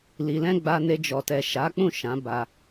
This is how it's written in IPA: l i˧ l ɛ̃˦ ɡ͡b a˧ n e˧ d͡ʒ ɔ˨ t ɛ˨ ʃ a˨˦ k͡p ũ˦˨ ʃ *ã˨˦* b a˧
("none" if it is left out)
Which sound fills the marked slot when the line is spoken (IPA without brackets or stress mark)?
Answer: ã˨˦